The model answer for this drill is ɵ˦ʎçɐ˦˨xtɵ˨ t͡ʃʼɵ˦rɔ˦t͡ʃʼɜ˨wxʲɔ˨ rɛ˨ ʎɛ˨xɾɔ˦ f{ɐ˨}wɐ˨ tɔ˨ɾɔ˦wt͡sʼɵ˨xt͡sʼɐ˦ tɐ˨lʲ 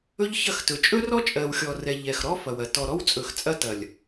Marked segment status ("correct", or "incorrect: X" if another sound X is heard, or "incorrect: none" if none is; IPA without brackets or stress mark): correct